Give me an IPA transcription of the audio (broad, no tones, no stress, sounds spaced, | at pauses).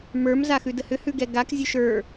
m ə˞ m z a x ʉ d ə h ʏ h ʉ ɡ ɛ ɡ a k zʲ ə˞ ʃ ə˞